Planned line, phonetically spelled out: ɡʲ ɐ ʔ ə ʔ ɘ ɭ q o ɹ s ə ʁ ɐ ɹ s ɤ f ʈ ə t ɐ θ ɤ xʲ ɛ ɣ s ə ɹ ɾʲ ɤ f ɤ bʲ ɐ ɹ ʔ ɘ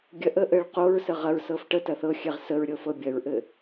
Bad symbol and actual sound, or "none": ɣ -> ʁ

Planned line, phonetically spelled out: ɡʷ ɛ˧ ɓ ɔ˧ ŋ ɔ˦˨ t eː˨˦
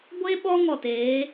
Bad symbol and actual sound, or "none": ɛ˧ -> e˧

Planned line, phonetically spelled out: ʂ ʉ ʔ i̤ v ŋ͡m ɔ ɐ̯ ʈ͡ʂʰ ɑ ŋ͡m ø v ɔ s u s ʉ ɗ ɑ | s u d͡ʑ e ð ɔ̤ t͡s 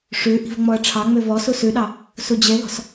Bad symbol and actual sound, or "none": t͡s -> s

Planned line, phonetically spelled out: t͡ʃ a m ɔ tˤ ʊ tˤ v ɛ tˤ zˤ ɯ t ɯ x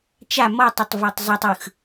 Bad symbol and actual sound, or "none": t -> tˤ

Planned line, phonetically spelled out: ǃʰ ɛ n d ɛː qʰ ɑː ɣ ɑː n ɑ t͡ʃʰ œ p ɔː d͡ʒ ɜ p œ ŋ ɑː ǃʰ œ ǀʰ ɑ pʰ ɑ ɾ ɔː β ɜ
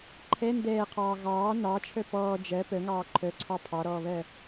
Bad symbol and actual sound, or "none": none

